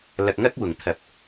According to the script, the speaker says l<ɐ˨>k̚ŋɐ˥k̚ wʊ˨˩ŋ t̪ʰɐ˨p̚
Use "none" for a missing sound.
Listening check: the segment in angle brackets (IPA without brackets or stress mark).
ɐ˨